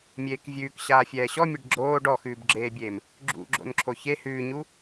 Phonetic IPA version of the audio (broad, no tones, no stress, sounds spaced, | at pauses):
mʲ eː k vʲ ʉː k ɕ aː fʲ ɛː ɕ ɔ mʲ ɛ ɖ ɡ͡ǁ oː ɖ ɔ x ʉː b ɡ͡ǁ eː bʲ eː m | ɡ͡ǁ ṵ ɡ͡ǁ o̰ n ǁʰ o ç e h ʉː ɲ u